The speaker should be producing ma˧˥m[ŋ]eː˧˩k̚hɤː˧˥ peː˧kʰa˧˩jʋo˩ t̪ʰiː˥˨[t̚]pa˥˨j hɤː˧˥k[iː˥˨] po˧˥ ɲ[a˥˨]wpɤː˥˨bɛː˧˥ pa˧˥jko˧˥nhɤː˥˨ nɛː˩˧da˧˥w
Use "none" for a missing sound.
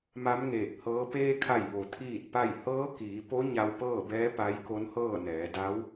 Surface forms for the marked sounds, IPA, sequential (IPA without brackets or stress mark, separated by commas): ŋ, t̚, iː˩˧, a˧